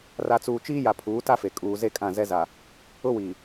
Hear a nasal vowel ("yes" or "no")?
yes